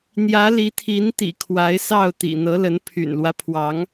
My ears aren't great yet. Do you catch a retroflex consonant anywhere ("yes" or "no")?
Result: no